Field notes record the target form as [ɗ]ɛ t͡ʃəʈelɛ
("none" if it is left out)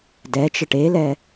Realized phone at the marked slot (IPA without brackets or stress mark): d